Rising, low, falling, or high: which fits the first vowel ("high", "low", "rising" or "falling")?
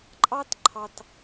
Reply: high